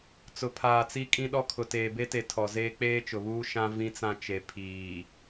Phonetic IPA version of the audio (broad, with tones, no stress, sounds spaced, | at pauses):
t͡s ʊ˨ pʰ aː˨ t͡s i˦ kʼ ĩ˦ ɗ ɔ˦ kʰ ʊ˨ t eː˨ b e˦ t e˨ tʰ ɔ˨ z eː˦ k͡p eː˦ t͡ʃ ʊ˨ β uː˦ ʃ ã˦ v ĩ˦ t͡s ã˦ t͡ʃ e˨ pʰ iː˨